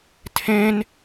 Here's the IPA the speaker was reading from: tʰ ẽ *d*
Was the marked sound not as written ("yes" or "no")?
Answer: yes